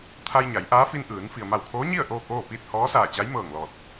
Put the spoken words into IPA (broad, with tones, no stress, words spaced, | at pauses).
t̪ʰa˧jɲa˩˧j ʔaː˧˥fi˧n ʔɯː˩˧n fi˩ə̯ma˧˩wkʰoː˧˥ɲi˥˨ə̯ ʔoː˥˨koː˥˨ piː˥˨t̚hɔː˧˥saː˧˩t͡ɕa˧˥j mɤː˧˩ŋlɔː˧˩t̚